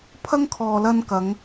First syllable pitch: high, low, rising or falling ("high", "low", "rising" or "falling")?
high